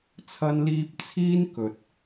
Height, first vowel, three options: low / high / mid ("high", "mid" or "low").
low